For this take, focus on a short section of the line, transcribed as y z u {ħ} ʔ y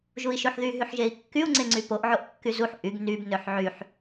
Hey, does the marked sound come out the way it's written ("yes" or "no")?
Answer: yes